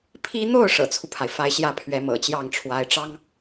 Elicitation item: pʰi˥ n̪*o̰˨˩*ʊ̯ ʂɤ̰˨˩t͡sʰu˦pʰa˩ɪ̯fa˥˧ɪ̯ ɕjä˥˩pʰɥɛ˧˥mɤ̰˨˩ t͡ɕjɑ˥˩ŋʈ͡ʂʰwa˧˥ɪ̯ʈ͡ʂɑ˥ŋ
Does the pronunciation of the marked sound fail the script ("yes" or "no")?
yes